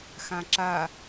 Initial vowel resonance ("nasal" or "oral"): nasal